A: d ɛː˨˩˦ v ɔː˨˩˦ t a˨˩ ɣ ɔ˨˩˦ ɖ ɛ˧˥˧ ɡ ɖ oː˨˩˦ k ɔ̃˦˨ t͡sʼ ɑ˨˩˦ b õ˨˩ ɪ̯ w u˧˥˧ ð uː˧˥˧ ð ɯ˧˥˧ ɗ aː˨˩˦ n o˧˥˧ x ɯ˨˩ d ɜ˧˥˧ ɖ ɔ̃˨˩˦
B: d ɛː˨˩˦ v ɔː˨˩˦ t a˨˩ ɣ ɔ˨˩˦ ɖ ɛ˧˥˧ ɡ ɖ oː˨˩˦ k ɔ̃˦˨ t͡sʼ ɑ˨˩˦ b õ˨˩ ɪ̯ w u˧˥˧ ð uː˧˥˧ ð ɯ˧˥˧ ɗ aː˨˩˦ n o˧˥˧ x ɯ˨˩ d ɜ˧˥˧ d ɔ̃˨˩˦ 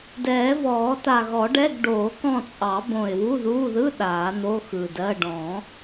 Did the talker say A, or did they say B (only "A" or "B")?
A